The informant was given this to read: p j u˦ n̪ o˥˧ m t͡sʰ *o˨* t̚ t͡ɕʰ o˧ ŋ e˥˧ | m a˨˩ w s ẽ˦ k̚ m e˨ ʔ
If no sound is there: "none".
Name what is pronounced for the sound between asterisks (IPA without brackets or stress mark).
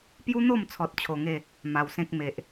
ɔ˨